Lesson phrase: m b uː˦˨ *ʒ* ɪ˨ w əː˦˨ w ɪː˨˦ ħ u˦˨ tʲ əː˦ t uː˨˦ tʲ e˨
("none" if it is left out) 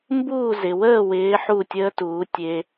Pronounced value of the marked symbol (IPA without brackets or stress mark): z